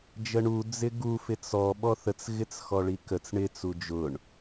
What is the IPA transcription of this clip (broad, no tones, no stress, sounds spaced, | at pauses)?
d͡ʒ ə ɳ u d͡z ɪ ɡ u f ɪ t͡s ɔ ɓ ɔ θ ə t͡s ɣ ɪ t͡s x ɔ ɭ i k ə t͡s ɳ ɪ t͡s u d͡ʒ ʊ ɳ